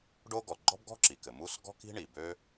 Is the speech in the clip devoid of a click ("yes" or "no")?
no